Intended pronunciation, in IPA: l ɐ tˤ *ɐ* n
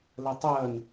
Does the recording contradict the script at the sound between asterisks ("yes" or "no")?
yes